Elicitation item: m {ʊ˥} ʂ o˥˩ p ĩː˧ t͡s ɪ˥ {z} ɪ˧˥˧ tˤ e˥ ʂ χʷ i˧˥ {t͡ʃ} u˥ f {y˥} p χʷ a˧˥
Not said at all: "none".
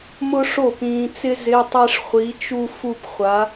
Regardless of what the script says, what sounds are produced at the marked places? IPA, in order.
ʊ˥, z, t͡ʃ, u˥

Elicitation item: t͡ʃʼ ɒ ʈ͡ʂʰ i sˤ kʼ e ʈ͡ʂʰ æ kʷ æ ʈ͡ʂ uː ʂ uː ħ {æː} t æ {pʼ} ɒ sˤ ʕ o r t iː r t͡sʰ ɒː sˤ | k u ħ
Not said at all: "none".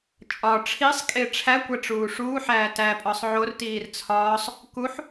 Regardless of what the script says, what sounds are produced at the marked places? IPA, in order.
æː, pʼ

